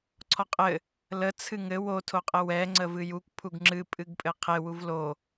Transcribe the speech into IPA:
ǀʰ ɔ qʼ ɘ | l ə t͡sʰ ɨ ŋ ɘ w o tʰ o qʼ ɘ w ɛ ŋ͡ǀ ə v ɨ j u kʷ pʰ u ɡ ŋ͡ǁ ɨ pʼ ɨ ɡ pʼ ɘ qʰ e w u v l o

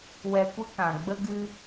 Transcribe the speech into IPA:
w ɛ˧ kʷ ə˦ k ã˨ ɡ͡b ə˦ ɡ ɨ˧

